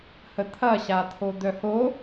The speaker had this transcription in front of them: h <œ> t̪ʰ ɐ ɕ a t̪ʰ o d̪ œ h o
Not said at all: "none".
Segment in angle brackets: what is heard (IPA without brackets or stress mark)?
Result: ə